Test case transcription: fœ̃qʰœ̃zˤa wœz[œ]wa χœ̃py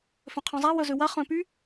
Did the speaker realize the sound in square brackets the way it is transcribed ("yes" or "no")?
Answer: no